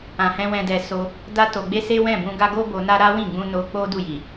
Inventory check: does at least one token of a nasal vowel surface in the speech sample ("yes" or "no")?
yes